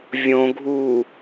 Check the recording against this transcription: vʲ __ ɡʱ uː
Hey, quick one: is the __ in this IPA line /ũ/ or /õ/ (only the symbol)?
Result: õ